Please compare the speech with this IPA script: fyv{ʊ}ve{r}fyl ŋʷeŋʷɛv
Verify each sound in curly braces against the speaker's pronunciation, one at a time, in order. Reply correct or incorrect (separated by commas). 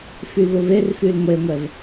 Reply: correct, correct